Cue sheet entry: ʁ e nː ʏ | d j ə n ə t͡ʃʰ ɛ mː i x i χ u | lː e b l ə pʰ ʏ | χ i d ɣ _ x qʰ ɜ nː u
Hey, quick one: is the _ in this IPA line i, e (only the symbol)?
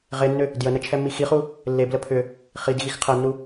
i